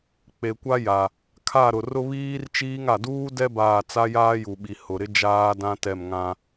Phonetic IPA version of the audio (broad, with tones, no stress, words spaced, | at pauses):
k͡pe˨kʷa˦ja˨ | kʰa˦˨ɾʊ˨ rʊ˦βiː˦rt͡ʃiː˦ŋ a˨duː˦dɛ˦ baː˦˨ t͡sa˦jaː˦ju˨ɓi˨ hʊ˨ɾɪ˦ d͡ʒaː˦dã˦tɛ˦˨m ŋã˦